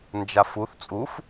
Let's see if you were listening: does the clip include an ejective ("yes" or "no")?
yes